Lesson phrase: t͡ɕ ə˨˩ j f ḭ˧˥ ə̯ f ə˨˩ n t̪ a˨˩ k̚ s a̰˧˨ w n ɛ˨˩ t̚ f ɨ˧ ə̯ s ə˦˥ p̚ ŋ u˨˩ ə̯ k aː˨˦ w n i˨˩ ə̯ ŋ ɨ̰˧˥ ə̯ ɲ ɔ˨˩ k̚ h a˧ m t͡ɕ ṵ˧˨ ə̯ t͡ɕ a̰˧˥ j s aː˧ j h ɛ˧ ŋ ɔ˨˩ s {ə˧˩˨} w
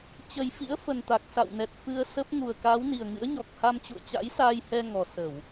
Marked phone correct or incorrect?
correct